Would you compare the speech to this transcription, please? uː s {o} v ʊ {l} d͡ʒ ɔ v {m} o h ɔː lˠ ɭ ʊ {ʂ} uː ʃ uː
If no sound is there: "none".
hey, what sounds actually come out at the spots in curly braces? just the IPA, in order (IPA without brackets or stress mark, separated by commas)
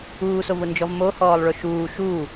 o, n, m, ʃ